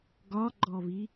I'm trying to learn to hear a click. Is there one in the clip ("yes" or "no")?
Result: yes